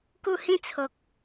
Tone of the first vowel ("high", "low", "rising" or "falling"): falling